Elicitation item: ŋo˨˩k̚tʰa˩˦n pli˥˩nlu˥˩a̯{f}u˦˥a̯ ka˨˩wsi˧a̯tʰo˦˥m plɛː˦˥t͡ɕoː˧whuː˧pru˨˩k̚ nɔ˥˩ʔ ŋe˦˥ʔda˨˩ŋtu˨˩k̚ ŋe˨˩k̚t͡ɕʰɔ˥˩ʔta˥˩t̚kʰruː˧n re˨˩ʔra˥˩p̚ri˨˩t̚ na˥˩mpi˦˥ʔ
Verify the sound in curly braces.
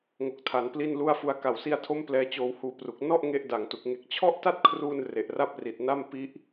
correct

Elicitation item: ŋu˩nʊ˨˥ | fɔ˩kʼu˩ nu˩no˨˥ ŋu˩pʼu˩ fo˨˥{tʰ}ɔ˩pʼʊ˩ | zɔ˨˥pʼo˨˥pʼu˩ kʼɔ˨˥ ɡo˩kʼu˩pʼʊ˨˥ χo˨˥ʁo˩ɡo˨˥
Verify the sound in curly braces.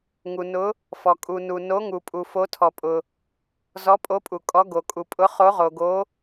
correct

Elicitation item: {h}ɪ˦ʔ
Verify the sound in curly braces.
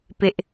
incorrect: p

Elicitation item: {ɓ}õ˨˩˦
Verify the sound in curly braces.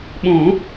correct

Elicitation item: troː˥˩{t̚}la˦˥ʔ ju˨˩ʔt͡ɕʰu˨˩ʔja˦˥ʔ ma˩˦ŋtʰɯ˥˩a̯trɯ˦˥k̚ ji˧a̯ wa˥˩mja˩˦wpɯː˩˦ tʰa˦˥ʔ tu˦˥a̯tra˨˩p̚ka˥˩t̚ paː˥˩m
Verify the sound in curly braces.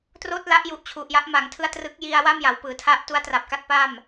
correct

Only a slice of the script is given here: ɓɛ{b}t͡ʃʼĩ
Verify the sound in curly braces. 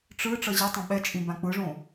incorrect: none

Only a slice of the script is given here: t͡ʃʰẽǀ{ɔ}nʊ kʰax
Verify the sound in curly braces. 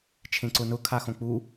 incorrect: ʊ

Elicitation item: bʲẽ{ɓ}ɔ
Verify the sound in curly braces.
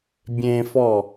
incorrect: f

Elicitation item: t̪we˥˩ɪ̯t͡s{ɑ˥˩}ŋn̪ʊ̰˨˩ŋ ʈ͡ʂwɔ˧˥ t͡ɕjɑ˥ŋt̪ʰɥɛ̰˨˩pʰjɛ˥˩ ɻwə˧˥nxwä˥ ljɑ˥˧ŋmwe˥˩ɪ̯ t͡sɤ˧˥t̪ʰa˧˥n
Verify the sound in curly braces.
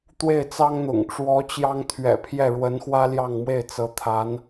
incorrect: ɑ˥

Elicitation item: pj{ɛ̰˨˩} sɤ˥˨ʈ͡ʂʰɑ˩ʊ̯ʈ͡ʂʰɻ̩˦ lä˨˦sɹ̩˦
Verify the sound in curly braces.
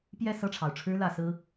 incorrect: ɛ˥˨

